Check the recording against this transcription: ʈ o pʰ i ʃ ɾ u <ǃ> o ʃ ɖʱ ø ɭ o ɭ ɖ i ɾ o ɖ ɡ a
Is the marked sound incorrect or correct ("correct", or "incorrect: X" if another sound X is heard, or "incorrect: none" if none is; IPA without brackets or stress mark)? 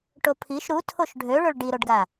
incorrect: tʰ